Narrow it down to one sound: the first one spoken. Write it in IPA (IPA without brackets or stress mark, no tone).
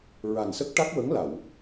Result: ɹ